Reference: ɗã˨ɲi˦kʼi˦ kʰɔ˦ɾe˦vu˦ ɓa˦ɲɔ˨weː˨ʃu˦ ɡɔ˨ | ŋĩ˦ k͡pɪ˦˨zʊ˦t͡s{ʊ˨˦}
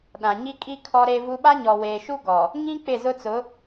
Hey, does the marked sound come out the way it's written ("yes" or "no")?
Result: yes